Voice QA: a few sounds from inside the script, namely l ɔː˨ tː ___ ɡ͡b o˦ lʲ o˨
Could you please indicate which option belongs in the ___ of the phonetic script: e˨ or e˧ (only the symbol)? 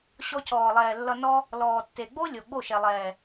e˨